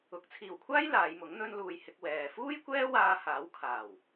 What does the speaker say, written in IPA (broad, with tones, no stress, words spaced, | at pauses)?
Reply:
ʊ˨˥k̚ t͡sʰiː˨˩wkʷʰaː˥j laː˨˧jmʊ˨˥ŋ n̪ɵ˧nluː˨j hɪ˧k̚wɛː˨ fuː˥jkʷɛː˥waː˧ haː˨˥wkʰaː˨˩w